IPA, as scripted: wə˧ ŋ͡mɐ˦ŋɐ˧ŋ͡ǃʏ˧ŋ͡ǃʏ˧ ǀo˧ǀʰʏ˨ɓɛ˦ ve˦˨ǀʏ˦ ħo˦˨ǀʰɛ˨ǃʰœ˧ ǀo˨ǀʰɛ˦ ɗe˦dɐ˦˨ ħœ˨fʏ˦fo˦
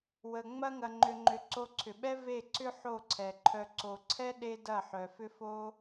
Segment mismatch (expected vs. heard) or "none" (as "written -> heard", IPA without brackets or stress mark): none